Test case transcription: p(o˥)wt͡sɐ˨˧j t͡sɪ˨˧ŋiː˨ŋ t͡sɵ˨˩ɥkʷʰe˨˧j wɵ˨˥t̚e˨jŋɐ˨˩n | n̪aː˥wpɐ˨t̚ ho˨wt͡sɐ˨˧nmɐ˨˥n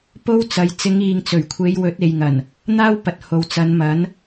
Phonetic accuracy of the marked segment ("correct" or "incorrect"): correct